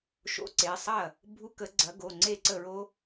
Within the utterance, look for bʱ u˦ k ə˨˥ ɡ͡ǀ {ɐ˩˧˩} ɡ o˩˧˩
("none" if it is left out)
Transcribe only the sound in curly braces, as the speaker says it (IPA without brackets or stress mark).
ɐ˨˥